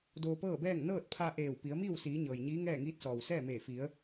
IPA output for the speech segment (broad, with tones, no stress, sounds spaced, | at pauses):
d oː˧ p ɤː˥˨ b ɛː˥˨ ŋ n ɤː˥˨ t̚ pʰ a˧ ʔ eː˧˩ w p i˩˧ ə̯ m iː˥˨ w s iː˩˧ ɲ ɤː˩ j ɲ iː˧˥ ŋ ɛː˥˨ ŋ iː˧˥ t̚ s ɔː˩ w s ɛː˥˨ m eː˧˩ f i˩˧ ə̯